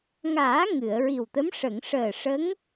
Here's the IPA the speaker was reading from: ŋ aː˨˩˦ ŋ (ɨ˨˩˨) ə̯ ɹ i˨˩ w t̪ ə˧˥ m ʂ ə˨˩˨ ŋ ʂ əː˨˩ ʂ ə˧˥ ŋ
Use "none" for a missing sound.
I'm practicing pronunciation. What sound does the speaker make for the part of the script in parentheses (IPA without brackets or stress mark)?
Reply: ɨ˨˩˨